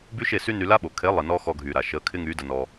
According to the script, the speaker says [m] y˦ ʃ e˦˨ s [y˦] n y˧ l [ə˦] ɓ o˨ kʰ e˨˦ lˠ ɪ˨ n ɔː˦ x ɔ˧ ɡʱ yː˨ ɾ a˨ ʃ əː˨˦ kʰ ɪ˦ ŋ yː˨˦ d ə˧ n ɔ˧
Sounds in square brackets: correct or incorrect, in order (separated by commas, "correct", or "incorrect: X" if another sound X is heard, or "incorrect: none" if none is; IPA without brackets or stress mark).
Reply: incorrect: b, correct, incorrect: a˦